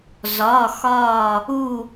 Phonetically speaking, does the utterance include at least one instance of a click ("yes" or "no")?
no